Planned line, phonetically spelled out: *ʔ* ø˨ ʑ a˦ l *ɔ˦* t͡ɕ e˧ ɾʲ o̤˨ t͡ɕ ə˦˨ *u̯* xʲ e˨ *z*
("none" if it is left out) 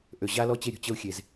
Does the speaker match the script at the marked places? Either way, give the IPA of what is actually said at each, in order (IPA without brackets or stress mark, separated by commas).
ʔ, ɔ˦, u̯, z